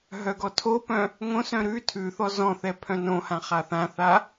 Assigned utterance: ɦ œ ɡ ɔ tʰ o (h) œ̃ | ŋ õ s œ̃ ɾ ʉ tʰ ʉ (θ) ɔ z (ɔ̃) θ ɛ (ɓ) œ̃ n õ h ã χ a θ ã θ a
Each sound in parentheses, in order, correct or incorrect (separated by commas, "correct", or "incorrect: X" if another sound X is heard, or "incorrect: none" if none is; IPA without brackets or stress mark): incorrect: p, correct, correct, incorrect: pʰ